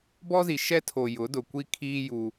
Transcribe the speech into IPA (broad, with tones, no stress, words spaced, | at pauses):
bɔ˦zi˨ ʃɛ˦tʰo˨ jʊ˨˦dʊ˨kʷi˦ kʰiː˦ juː˦